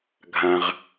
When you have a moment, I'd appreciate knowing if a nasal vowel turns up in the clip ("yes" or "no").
yes